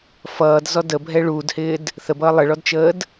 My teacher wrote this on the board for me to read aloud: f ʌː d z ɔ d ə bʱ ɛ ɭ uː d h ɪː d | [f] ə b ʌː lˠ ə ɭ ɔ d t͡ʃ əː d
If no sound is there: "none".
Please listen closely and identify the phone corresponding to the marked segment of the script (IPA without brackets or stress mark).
θ